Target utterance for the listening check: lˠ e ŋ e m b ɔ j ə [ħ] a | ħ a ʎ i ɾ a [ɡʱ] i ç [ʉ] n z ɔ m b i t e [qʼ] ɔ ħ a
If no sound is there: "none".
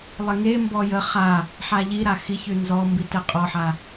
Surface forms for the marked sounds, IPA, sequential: χ, x, ʉ, qʼ

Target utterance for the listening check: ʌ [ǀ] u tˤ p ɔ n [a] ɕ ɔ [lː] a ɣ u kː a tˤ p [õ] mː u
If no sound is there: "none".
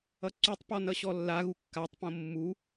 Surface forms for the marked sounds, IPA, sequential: ǀ, ʌ, lː, õ

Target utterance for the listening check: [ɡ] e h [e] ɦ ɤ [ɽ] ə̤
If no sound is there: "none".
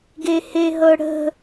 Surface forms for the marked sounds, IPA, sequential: ɡ, e, ɽ

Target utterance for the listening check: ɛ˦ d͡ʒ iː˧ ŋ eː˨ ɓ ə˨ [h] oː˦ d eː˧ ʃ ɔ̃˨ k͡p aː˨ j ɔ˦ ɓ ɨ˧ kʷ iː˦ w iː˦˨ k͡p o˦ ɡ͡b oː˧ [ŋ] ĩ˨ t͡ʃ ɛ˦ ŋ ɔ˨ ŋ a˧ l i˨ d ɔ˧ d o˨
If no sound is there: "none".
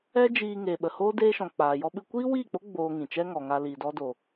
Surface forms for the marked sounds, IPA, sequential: h, ŋ

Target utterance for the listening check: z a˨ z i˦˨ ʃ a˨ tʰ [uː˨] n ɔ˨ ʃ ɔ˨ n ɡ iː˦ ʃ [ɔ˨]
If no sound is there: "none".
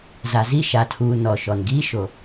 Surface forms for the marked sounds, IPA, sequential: uː˨, o˨

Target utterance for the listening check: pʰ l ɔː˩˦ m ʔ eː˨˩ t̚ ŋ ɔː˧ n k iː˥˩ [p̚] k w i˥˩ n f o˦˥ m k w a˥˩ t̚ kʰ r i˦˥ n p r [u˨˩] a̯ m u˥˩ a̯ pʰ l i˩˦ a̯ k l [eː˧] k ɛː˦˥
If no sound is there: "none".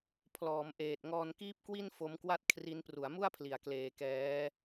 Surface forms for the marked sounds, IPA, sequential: p̚, u˩˦, eː˧

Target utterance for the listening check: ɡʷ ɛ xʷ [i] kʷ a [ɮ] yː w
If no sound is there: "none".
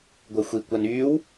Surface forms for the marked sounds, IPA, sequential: i, n

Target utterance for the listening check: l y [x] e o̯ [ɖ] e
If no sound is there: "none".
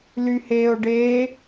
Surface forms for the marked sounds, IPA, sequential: h, ɖ

